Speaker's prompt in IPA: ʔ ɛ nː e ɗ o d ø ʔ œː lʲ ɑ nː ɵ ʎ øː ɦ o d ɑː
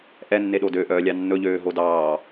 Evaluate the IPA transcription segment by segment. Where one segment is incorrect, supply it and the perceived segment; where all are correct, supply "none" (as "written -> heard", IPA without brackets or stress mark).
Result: none